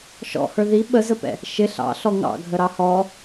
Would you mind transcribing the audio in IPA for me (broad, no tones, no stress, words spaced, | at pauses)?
ʃɔ̰hə˞ ði ɓəzəpɛ̰ | ʃɪ ɬɑ̰ɬɔ ŋɑ̰ɡʱəɾɑ hɔ